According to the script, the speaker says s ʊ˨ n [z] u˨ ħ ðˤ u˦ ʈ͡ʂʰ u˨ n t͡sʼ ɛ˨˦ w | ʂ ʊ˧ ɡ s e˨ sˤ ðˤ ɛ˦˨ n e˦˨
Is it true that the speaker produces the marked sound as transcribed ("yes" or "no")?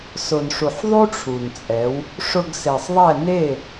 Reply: no